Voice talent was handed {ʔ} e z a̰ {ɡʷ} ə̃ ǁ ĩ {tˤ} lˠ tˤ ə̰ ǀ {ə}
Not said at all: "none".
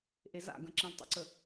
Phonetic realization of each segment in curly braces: ʔ, ɡ, none, ə

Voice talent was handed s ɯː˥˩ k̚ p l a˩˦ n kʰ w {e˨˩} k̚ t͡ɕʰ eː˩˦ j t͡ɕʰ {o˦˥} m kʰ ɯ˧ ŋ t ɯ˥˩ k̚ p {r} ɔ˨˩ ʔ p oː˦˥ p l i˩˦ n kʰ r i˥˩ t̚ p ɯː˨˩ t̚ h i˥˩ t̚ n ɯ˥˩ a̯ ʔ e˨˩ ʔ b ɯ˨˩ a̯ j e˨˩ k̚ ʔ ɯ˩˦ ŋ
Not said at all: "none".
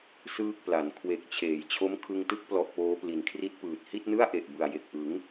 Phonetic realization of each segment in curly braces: e˨˩, o˦˥, l

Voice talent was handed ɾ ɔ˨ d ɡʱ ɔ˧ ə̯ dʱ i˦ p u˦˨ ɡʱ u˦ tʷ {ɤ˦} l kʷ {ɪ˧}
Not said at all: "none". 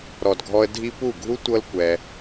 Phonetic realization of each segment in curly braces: ɤ˦, ɛ˧

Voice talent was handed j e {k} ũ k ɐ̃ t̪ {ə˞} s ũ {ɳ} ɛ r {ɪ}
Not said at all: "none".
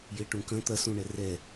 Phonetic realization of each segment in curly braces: ʈ, ɐ, ɳ, ɛ

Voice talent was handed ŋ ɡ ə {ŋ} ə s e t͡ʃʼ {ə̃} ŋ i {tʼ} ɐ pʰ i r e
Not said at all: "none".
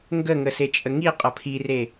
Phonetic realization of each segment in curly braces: ŋ, ə, qʼ

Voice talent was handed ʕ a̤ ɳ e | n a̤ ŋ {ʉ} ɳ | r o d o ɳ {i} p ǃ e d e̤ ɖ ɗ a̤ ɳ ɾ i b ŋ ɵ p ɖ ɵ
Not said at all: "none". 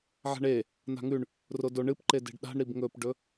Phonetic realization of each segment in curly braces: ʉ, ɨ

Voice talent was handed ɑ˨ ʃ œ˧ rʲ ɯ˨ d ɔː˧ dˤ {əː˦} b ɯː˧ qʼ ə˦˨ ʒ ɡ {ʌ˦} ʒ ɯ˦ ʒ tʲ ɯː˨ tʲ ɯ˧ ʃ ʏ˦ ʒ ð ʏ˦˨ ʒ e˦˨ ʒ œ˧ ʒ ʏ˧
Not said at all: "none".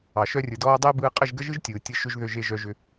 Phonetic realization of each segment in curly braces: əː˦, ə˦

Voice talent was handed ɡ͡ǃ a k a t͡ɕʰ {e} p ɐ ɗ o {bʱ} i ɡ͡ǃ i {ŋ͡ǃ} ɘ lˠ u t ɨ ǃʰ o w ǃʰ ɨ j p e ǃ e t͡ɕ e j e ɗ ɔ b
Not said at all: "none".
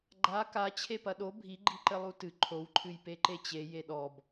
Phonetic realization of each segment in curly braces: e, bʱ, ǃ

